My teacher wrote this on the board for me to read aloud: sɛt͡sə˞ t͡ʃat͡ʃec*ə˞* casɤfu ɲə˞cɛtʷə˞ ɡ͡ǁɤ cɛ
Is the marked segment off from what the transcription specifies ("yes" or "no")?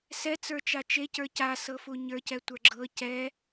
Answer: no